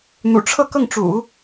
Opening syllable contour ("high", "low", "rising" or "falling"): low